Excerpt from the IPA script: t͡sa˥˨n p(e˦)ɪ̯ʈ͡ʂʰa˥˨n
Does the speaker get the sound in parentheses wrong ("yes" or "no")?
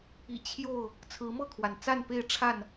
yes